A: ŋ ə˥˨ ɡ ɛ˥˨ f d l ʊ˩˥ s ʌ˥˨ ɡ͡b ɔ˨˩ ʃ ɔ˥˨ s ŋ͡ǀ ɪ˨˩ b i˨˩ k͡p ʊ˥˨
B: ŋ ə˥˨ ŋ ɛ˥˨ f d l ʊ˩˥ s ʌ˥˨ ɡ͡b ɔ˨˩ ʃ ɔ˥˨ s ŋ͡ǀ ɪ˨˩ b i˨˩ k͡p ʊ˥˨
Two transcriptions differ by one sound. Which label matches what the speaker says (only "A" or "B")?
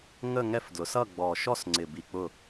B